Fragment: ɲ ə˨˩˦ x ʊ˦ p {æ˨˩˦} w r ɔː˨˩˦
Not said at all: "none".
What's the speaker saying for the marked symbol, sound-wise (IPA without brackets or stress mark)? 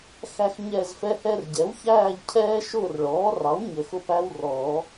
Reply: æ˦